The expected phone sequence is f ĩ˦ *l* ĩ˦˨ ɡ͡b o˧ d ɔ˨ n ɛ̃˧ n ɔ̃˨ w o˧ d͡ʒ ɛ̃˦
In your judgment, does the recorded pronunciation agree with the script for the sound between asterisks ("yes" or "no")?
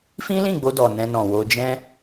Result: yes